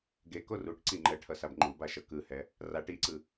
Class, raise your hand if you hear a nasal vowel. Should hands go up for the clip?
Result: no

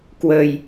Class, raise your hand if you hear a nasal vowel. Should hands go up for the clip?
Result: no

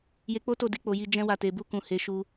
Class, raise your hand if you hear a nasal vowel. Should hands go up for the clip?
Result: yes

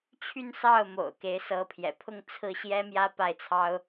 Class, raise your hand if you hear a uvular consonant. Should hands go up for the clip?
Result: no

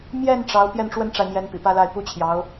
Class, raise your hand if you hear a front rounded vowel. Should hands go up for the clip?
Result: no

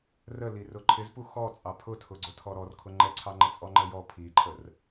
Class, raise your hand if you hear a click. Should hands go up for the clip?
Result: yes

